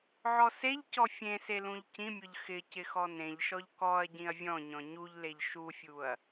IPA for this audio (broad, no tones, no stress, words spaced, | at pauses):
ʕɔseʎcɔ fʲẽse lũʎcĩmʲʊʎ xɪ cɪxɔnẽʎʃɔʎ kɔɐ̯ ɟĩɐ̯vʲɔ̃ɲɔ̃ ɲuʎleʎ ʃufʲuɐ̯